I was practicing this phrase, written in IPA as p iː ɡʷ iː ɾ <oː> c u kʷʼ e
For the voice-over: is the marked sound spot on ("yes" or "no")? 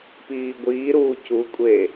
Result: no